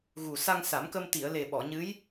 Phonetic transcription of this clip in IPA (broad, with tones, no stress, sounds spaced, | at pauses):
ɣ u˨˩ s a˧ ŋ s a˨˩˦ m k ə˧ m t̪ i˨˩˨ ə̯ l e˨˩ ɓ ɔ˨˩˨ ɲ ɨ˧˥ j